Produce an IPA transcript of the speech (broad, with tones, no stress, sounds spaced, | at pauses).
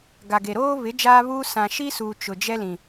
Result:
ɡ a˨ ɡ e˨ ɾ oː˦ β ɪ˨˦ d͡ʒ aː˦ β uː˦ s ã˨ ʃ i˦ s uː˨ t͡ʃ ʊ˨ d͡ʒ ɛ˦ l ĩ˨